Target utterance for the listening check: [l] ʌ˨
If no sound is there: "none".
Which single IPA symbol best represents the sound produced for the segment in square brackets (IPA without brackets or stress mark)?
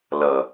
l